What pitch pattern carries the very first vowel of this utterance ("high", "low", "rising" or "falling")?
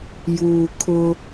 low